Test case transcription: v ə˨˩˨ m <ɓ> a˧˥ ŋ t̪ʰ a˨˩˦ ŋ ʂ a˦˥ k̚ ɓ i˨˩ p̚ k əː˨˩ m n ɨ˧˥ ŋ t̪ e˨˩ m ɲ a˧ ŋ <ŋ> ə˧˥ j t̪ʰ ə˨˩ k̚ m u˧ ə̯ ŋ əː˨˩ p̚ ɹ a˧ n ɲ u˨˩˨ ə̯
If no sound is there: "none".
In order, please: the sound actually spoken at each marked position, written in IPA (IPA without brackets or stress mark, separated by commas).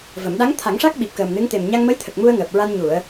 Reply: ɗ, m